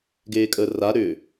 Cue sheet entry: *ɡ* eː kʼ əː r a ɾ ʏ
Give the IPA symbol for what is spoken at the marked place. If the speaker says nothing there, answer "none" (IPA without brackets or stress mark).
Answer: ɡ